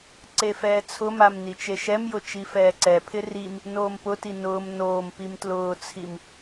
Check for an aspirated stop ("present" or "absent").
present